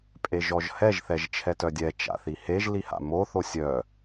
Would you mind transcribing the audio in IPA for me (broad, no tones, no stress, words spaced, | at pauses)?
pʼeʒɔʒhɛʒ θɛʒt͡ʃʰɛtœdʲɛ t͡ʃa̰θiheʒ liha̰mo θosʲœ